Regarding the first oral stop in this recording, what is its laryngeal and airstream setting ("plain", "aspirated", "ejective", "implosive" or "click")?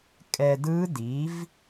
ejective